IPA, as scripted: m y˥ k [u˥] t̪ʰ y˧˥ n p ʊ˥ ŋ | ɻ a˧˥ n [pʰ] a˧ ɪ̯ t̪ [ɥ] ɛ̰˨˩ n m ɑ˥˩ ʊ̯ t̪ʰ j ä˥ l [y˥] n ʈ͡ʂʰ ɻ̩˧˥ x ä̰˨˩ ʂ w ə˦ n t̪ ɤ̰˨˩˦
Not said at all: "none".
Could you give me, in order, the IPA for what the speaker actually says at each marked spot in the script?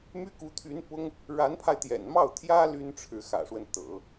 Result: u˧˥, pʰ, j, y˥

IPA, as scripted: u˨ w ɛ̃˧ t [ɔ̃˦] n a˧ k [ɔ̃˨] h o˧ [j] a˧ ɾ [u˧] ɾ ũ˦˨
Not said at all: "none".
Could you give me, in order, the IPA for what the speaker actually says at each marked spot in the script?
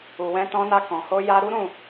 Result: ɔ̃˧, ɔ̃˨, j, u˦

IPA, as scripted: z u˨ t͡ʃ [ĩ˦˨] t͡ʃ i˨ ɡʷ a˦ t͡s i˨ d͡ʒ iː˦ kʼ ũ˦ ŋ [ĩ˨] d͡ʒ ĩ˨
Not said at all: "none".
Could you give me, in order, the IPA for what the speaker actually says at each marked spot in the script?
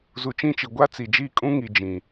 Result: ĩ˦˨, i˨

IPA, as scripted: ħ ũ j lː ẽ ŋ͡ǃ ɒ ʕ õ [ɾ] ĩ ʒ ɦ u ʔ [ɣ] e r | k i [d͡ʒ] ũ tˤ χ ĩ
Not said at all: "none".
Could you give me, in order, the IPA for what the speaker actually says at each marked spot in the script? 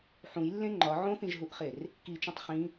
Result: θ, χ, t͡ʃ

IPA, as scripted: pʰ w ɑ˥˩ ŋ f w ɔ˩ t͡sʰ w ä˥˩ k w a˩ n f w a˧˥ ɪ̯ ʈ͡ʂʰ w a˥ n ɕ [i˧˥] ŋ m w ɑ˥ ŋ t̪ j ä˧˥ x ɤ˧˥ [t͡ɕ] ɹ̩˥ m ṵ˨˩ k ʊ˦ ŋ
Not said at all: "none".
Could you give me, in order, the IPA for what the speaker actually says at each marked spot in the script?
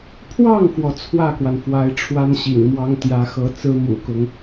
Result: ḭ˨˩, t͡s

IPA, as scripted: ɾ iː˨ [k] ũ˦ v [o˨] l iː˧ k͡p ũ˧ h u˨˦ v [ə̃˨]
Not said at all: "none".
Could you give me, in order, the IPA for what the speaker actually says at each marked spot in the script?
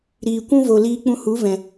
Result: kʷ, o˨, ɛ̃˨

